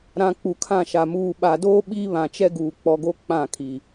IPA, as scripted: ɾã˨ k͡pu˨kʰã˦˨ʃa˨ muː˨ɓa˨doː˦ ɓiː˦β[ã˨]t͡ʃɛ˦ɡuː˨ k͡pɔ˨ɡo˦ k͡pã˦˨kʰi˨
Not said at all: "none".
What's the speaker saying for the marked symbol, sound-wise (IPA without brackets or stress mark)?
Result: ã˨